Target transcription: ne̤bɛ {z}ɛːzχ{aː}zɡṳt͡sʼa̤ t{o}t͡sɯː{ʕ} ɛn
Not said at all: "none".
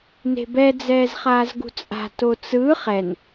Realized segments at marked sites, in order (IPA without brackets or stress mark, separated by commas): d͡z, aː, o, χ